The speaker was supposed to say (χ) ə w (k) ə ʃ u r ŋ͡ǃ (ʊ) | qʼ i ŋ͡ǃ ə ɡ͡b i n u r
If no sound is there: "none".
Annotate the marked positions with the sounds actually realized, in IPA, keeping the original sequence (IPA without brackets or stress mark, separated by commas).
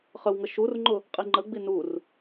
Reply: χ, ŋ, ʊ